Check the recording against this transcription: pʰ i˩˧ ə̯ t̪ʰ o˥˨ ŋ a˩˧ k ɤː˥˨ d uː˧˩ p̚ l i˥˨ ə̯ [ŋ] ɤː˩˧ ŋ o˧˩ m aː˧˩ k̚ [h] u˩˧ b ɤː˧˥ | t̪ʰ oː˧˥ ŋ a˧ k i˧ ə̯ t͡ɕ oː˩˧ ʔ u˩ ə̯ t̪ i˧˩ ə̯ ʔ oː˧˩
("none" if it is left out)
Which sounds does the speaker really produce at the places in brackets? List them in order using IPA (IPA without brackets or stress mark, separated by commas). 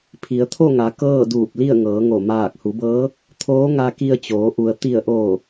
ŋ, h